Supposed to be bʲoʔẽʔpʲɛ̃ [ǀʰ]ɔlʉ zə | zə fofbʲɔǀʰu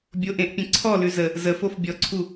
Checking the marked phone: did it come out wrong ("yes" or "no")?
no